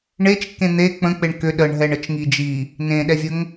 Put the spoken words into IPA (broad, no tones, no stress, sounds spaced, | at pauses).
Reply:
ɳ e t͡ʃ kː ẽ n̪ e k͡p ə̃ k͡p e ɳ k ʏ ɗ ə ɳ ɦ ɛ ɳ ə t͡ʃ ŋ i d͡ʒ i | n ẽ ɗ ɛ vʲ ə ŋ